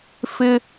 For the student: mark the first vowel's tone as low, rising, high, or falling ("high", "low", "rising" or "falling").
high